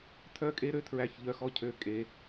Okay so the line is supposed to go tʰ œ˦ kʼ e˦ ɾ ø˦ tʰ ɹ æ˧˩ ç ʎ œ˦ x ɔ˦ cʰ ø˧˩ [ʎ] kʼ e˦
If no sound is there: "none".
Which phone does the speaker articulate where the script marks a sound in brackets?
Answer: none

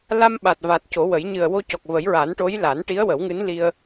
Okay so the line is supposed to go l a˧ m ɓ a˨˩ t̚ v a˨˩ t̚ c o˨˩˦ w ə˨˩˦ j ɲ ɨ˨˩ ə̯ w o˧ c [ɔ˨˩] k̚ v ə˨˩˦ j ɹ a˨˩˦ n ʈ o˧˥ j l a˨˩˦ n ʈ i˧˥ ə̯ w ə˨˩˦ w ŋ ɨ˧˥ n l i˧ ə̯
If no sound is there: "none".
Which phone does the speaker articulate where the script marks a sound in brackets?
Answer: ɔ˨˩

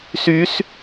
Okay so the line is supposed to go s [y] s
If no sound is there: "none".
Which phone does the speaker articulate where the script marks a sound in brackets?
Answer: y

